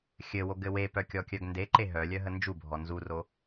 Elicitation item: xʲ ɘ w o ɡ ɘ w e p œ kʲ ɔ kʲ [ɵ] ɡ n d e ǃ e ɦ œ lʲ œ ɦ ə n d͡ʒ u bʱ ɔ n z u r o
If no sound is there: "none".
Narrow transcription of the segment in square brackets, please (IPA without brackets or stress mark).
œ